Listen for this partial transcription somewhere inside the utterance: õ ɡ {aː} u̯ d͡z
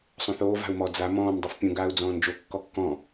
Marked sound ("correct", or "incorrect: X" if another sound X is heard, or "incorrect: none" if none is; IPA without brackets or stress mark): correct